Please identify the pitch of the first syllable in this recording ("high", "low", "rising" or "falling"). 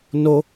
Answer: high